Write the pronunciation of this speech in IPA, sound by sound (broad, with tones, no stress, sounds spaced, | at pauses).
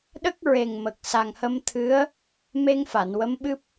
ɗ ə˦˥ k̚ ɹ e˨˩ ŋ m ə˨˩ k̚ s a˨˩ ŋ h ə˧ m t̪ʰ ɨ˧˥ ə̯ | m e˧ ŋ f a˨˩˨ n w ə˧˥ m ɓ ɨ˦˥ p̚